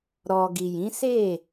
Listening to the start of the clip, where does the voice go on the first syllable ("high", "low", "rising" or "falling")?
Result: low